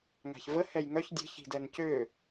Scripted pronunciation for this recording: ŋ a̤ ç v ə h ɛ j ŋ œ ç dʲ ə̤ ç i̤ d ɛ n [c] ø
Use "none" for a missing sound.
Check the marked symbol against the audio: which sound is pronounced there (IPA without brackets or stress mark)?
c